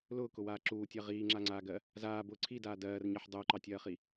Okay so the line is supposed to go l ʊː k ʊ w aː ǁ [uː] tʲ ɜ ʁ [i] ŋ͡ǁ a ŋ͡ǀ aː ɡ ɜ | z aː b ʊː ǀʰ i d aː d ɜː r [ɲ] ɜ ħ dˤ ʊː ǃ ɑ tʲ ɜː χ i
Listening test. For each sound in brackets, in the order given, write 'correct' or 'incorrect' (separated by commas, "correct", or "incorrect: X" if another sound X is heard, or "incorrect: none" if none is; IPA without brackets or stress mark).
correct, incorrect: iː, correct